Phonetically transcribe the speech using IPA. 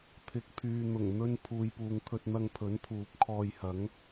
t̪ʰɪ˨k̚pʰyː˨n̪ʊ˨˩ŋ n̪ɵ˥n pʰuː˨jpuː˨ŋt̪ʰɵ˧t̚n̪ɐ˧ŋ pʰɵ˨˥nt̪ʰuː˨p̚ kʰɔː˧jhɐ˨˥ŋ

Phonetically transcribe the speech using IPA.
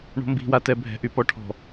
ɳo̤mbi̤ watɛbʱɛ̤ ʔypɔʈʰɔ̤

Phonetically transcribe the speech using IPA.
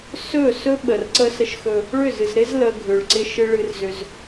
sɵ˦˨sɵ˦ ɓə˨rǀə˦sə˦ʃxɵ˦ | ɭʏ˦˨zɨ˨z ɾɪ˦z lə˨ ɡʱʏ˨ɭǀɪ˦ ʃɨ˦ɭɨ˦rzʏ˦z

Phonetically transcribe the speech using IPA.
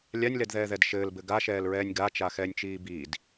lʲanʲlɛdðɛːðɛd ʃɘːlbɘ ɡaʃɛːlɹɛːnʲ ɡat͡ʃaxɛːnʲt͡ʃiː biːd

